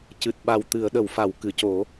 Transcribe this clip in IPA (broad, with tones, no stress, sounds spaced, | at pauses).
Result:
c ɨ˨˩ t̚ ɓ a˨˩ w t̪ ɨ˨˩˨ ə̯ ɗ ə˨˩˨ w f a˨˩˨ w k ɨ˨˩˨ c o˨˩˦